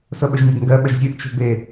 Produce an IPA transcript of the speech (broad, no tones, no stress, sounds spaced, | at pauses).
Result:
s ɤ ɓ ɵ ʒ nʲ ɛ ɡ ŋ ɡ ɜ ɓ ə ʒ zʲ ɨ ʔ t͡ʃ o̤ b e